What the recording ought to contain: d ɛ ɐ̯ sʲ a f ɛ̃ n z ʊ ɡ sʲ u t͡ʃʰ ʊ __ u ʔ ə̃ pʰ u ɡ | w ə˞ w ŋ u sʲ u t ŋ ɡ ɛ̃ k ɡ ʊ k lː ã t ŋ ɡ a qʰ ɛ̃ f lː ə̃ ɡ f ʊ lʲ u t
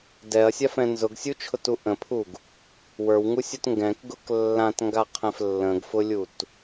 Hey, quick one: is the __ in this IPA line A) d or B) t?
B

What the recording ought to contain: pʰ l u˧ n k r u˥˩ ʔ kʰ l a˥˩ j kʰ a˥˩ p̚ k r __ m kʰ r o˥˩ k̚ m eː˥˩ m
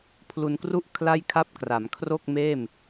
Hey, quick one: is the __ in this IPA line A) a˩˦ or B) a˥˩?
A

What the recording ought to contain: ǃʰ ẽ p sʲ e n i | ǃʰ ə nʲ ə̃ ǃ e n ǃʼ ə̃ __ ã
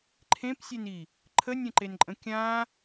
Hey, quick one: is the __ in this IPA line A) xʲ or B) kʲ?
B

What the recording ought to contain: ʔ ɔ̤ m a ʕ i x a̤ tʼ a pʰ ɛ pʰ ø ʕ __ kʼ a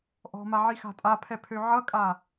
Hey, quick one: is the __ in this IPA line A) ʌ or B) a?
A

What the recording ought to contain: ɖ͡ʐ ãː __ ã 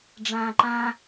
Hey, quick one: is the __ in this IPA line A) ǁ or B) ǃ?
B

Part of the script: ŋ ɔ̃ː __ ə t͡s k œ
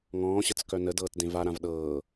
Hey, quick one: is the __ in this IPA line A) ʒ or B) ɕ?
B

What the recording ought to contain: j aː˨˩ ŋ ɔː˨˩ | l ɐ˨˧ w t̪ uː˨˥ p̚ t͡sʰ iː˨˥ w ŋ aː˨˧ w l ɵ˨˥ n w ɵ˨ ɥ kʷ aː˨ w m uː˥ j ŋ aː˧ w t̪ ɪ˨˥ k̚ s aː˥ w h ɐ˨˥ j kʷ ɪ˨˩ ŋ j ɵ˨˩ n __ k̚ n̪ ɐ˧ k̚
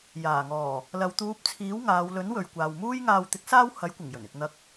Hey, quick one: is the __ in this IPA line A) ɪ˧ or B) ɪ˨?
A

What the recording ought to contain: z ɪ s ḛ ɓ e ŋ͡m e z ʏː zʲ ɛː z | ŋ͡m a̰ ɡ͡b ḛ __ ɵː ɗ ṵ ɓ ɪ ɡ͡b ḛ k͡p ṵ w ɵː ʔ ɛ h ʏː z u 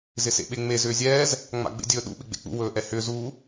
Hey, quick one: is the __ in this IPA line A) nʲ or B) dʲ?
B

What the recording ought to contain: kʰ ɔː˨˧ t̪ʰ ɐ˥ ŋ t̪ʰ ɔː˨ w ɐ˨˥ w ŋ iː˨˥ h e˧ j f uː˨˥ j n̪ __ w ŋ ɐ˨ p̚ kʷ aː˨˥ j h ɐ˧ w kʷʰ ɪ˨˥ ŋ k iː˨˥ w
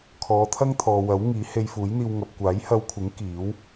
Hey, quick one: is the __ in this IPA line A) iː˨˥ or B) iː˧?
B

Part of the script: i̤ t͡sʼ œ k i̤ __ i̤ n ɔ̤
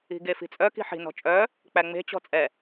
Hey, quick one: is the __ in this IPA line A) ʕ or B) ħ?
B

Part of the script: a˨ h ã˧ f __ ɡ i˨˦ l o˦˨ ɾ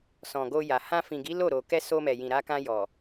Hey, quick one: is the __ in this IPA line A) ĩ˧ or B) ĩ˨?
B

